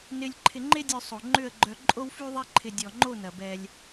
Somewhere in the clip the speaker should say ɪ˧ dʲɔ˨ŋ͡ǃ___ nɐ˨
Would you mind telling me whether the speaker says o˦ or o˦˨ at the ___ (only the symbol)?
o˦˨